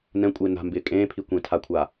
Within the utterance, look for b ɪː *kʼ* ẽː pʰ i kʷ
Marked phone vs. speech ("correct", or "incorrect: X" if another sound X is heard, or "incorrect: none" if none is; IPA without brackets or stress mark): correct